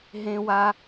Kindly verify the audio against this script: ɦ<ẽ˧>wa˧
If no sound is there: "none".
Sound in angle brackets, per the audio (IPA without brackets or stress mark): ẽ˧